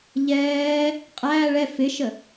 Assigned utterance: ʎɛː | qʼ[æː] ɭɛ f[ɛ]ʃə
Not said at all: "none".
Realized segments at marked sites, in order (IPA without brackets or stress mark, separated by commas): æː, ɪ